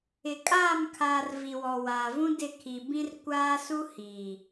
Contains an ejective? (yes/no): yes